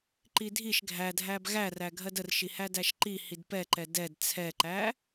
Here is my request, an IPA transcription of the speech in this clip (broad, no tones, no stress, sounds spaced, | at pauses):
ǃ i dʱ i ʃ ɡʱ æ dʱ æ b ɣ æ r æ ɡʱ ɜ d ə r ʃ i h æ d æ ʃ ǃ i h i d p ɛ ǃ ɛ d ɛ d t͡sʰ ɛ ǃ æ